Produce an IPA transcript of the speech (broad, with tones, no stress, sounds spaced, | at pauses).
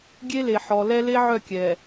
ɡʲ e˦ l e˨ ħ ɔ˨ l ɛ˦ l e˦ ʕ œ˦˨ kʲ ɛ˨